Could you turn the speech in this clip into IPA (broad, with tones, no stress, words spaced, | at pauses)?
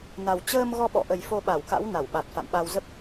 na˨˩wt͡ɕəː˧m ɣɔ˧ɓɔ̰˧˨ʔə˨˩j fo˧ɓa˧˩wka̰˧˥w na˧˩wɓa˨˩t̚fa̰˧˨mɓa˧w zə˦˥p̚